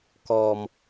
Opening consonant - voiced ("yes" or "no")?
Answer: no